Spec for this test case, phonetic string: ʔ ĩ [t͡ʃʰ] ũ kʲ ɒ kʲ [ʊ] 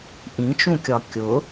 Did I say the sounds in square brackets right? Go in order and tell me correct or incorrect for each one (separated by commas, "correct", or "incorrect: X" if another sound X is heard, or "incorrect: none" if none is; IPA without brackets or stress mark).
incorrect: t͡ʃ, correct